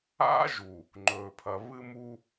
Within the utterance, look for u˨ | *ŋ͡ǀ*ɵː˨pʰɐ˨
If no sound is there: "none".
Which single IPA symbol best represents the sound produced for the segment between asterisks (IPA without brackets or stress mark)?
ŋ͡ǃ